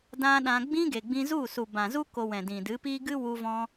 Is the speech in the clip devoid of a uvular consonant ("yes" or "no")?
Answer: yes